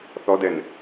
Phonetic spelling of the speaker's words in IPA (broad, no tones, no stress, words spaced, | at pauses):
θɔdɛn